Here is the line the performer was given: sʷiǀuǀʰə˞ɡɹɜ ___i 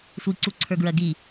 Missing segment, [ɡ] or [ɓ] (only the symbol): ɡ